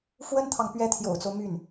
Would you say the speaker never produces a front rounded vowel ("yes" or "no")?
no